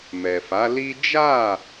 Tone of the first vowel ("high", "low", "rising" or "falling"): low